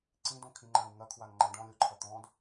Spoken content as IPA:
ǀ ĩ d õ kʰ ĩ ŋ͡ǃ ã u̯ ŋ ɐ kʰ w a ŋ ŋ͡ǃ ã ɖ ɔ̃ lʲ o ǃʰ ɐ t̪ ɔ̃ d

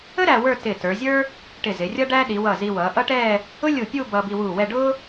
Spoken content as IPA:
ə˥ ɾ æ˧ w ə˞˥˧ t ɪː˧˩ t ə˞˩˧ zʲ ə˞˥ | ʈ ɪ˧˩ z ɪ˩˧ rʲ ʌ˥ ɖ æ˥ ɗ i˩˧ w ʌ˧˩ z i˧ w ʌː˩˧ ʔ ʌ˥ ʈ ɛː˥˧ | ʊ˥ lʲ u˧˩ pʲ u˥˧ b ʌː˧ b i˧ w uː˧˩ w ɛ˥˧ ɖ ʊ˥

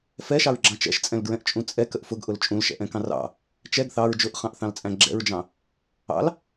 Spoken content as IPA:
f ɛ ʃ ɑ ɹ ɡ͡ǁ ɑ̃ t͡ʃ ɛ̰ ʃ t͡sʼ ɛ̃ l ɡ ɹ ɛ̃ ʔ t͡ʃʼ ũ t͡sʼ ɛ k ə ʔ f ʊ ɡ ʔ ʊ l t͡ʃʼ ũ l ʃ ɛ̰ ʔ ɛ̃ k ɑ̃ r ɑ̰ | t͡ʃ ɛ ɡ θ ɑ ɹ d͡ʒ ʊ ʔ χ ɑ̃ ʔ θ ɑ̃ l t͡sʼ æ̃ ɡ͡ǁ ɛ̰ ɹ d͡ʒ ɑ̃ | ɑ̰ l

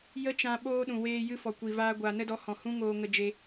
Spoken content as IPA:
j ə˦ t͡ʃ ã˧ ɓ oː˧ ɗ ũ˨ w eː˧ j ɨ˧ f ɔ˨ kʷ i˨ v aː˧ ɡʷ aː˨ n ə˧ d ɔ˨˦ h ɔ̃˨ h ũ˦ ŋ oː˧ ŋ ə˧ d͡ʒ e˧

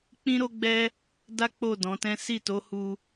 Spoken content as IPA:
k͡p ĩ˦ ɾ o˦ ɡ͡b ɛ˦ | d a˦ k͡p o˦˨ d ɔ̃˨˦ t ɛ̃˦ s i˦˨ t o˨˦ h u˧

